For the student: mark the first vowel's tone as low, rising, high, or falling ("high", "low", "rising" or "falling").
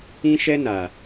high